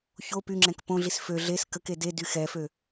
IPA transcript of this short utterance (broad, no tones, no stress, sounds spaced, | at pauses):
ç o p y ŋ͡ǁ ɛ̃ k p õ ɮ i s f ø ɮ e s k ə k e d e d y x ɛ f ø